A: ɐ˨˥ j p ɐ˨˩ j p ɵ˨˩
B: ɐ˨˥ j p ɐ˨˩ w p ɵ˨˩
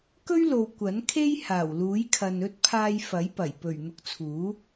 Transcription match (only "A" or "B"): A